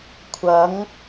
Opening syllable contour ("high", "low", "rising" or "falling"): rising